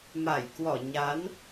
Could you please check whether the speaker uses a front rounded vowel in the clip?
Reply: no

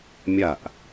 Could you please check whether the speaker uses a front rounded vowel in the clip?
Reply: no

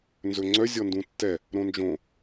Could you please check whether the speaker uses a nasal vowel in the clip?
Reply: yes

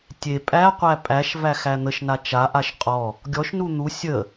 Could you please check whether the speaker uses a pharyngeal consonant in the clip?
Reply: no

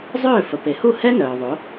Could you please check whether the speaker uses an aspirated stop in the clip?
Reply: no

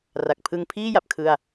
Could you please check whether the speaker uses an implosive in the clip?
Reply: no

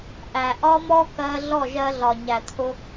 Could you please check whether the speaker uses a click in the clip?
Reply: no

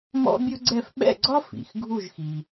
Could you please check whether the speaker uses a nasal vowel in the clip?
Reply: no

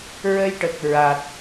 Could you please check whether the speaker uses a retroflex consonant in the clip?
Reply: yes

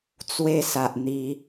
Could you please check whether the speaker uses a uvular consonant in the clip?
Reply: no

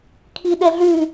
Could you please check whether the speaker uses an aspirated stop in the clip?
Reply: yes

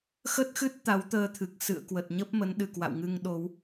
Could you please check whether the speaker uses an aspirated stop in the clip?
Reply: yes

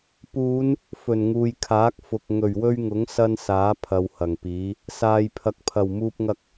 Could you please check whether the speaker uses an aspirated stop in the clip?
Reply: yes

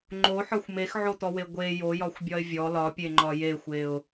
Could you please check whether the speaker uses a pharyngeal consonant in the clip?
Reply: yes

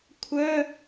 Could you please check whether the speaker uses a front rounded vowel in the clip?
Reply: yes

